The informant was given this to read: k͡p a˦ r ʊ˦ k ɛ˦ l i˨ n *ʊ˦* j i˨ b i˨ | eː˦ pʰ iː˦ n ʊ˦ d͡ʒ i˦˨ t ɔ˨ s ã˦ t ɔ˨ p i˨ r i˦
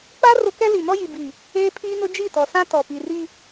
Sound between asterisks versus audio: incorrect: ɔ˦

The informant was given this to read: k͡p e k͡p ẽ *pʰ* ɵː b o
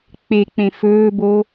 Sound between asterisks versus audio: incorrect: f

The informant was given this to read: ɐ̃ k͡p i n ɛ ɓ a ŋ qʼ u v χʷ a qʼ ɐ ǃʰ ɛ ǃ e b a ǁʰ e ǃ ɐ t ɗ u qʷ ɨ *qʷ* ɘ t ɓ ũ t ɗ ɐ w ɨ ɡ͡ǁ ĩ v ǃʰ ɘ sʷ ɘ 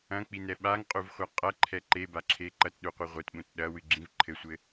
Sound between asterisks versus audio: incorrect: ʁʷ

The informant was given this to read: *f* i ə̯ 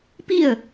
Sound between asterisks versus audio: incorrect: p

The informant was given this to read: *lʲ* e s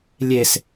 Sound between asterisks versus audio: correct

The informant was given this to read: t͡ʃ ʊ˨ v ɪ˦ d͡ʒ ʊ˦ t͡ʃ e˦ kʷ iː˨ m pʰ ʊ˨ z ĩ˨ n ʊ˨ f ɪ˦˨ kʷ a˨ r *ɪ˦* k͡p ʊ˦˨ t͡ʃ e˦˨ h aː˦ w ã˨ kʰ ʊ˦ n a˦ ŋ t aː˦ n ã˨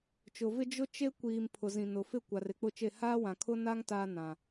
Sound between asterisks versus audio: correct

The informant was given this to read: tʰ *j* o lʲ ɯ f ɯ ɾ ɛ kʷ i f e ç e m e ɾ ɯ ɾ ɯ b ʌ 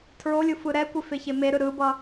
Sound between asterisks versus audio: incorrect: ɹ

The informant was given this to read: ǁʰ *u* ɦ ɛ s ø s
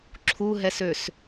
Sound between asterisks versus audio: correct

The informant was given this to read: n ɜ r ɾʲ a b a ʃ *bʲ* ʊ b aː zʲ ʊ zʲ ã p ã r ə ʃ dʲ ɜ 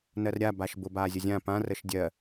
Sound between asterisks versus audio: incorrect: b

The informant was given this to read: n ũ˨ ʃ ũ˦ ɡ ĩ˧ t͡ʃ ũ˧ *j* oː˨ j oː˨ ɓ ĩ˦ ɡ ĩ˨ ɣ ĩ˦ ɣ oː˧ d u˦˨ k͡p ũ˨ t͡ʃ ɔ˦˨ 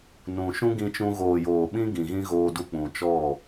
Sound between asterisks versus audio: incorrect: ɣ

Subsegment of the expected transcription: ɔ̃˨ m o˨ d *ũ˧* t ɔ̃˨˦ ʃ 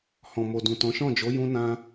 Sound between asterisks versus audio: incorrect: ũ˨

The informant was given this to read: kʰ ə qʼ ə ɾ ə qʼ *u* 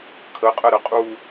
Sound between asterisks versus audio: correct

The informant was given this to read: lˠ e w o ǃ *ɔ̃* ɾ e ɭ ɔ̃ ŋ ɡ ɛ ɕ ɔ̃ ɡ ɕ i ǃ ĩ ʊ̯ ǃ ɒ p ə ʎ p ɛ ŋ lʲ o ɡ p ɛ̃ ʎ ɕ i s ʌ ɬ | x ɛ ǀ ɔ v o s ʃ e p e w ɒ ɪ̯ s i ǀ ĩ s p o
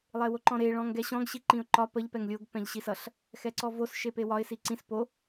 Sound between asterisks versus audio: correct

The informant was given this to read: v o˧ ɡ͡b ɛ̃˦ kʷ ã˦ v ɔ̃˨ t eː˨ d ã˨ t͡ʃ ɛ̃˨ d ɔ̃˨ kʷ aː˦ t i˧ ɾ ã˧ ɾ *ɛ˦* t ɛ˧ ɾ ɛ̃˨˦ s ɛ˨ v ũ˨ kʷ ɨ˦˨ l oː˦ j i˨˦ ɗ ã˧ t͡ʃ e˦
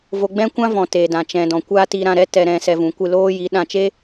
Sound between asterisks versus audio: correct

